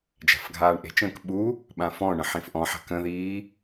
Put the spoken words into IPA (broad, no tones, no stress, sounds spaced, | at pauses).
d͡ʒ a̤ f ɡʱ aː ɳ ʔ e̤ t͡ʃ ə̃ː k ɓ u | ɓ ã f ɔ̃ ɳ ə̃ ħ ĩ f ʔ ɔ̃ ħ a̤ k ə̃ ð iː